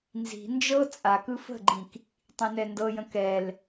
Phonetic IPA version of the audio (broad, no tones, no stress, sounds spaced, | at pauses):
n z i̤ n d͡ʒ ɤ t͡sʼ a k ɯ f ə̤ ɡ͡ǃ ĩ k | tˤ ĩ n ɛ n d ɤ j ə̃ k ɛ l